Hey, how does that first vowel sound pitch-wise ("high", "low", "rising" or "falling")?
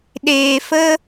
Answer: low